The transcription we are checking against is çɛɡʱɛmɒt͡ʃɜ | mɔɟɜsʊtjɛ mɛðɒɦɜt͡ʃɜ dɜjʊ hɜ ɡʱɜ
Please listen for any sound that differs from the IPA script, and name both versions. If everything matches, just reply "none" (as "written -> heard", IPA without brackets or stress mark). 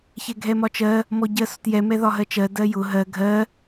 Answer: h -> ɦ